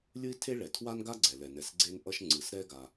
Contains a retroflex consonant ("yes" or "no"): yes